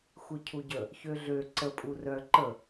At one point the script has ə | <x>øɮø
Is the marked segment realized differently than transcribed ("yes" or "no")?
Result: yes